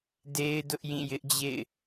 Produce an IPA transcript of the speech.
d e˦ ɪ̯ d ʊ˦ ʔ j ĩ˦˨ j ɪ˦ ʔ d͡ʑ ḛ˦˨ ɪ̯

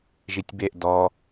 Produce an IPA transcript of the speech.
ʒ i tʲ b e ʔ d ɔ

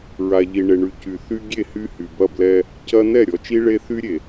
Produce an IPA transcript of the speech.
ɹ a˨ ʎ i˨ ɳ e˨ ɳ y˨ c y˨ θ y˦ ɡʲ e˦˨ h y˦ h y˨ b ɐ˦˨ b l ɛ˦ | c ɐ˦ n ɛ˦˨ ɾʲ ɔ˨ t͡ʃ i˦ ɭ e˦ θ y˦ ɾʲ e˨

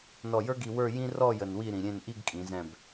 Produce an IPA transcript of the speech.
n ɔ˧˩ j ə˞˥ ɡ i˧ w ə˞˥˧ j ĩ˥ r ɔ˥˧ j ə˧ n w i˥˧ ɾ ĩ˩˧ ɾʲ ẽ˥˧ n ʔ i˥˧ ɡ kʼ ĩ˩˧ z ɛ̃˧˩ b

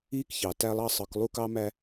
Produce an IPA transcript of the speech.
iː˦ k ç ɑ˨ t æ˦ lˠ ɑ˦ sˤ ɯ˨˦ k lˠ u˦ k ɑ˦ m æ˦

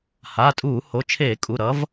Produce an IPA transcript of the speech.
h a˩˧˩ tʼ uː˧˩˧ h o˩˧˩ t͡ʃʰ eː˧˩˧ kʼ u˩˧˩ ɾ ʌ˨˥ v

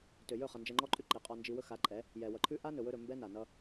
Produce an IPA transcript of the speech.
t ø˨ j ɵ˦˨ χ ʌ˨ n d͡ʒ ɛ˧ ŋ͡ǃ ɔ˦ ǃʼ ʉ˦ ǃ i˨ qʼ ɔ˧ n d͡ʒ i˧ w ɵ˦ x a˨˦ ǃʼ ɛ˨˦ | j ɛ˨ w ʌ˨ ǃʰ ʉ˦ ʔ a˦ n ɵ˨ w ɵ˧ ɾ ɵ˨ m b ɛ˦ n a˨ n ʌ˧

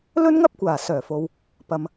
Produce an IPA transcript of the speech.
l ɵ˥ n ŋ ɐ˥ p̚ kʷ aː˨˩ s œː˨˩ f o˨ w | p ɐ˨ m

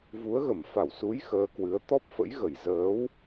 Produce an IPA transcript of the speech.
v u˨˦ ə̯ ɣ ə˧˩ m f a˧˩ w s u˨˦ j x əː˧ k w ɨ˨˦ ə̯ t̪ ɔ˦˥ p̚ f ə̰˧˥ j ɣ ə˧˩ j z əː˨˦ w

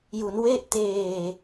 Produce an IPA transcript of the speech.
j u˩˦ n w e˥˩ ʔ t eː˨˩

